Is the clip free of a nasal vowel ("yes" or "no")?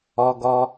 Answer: yes